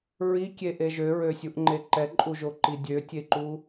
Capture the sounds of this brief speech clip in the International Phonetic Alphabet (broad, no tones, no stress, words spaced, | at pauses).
ɹikʲeʔe ʒøɹøsʲuʔŋ͡ǃe ǃɛǃʼuʒoǃi dʲøtʲeǃu